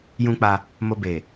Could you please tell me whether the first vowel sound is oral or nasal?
nasal